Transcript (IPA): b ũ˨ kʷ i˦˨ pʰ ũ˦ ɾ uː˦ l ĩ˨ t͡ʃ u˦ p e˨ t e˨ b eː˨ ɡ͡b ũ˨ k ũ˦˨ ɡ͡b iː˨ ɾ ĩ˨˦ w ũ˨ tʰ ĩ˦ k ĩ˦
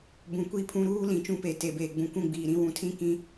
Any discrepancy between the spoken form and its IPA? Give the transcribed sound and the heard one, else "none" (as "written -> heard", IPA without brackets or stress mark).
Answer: u˦ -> ũ˦